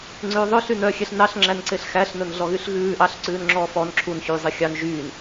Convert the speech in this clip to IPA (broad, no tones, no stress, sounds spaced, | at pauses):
ŋ͡ǀ ʉː ðˤ ɵ ɬ y n œ xʲ ɛ ɬ n ɑ ɬ ŋ͡ǁ æ n ǀ e ɬ x æ ɬ n ɵ n ɮ ɔ ɣ y ɬ ɣ ʉː ʔ ɑ ɬ ǀ ʉː n ŋ͡ǁ ɔː f ɔ n ǁʰ u n ç yː zˤ i xʲ ɑ n ʒ yː n